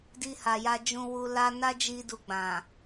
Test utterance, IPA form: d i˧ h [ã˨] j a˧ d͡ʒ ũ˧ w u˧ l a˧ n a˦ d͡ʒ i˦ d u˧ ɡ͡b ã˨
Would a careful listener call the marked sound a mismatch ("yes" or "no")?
yes